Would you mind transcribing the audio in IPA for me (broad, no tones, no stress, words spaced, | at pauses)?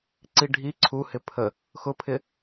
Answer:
ǀiɖʱi ǀʰuhɪ pʰə | xʊpʰɪ